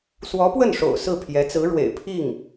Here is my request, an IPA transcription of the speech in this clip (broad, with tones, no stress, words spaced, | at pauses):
swɔ˧˥pwə˥˩nʂo̰˨˩ʊ̯ sɹ̩˥˩pʰjɛ˧˥t͡sɹ̩˧˥ɻwḛ˨˩ɪ̯ pʰi˥˩ŋ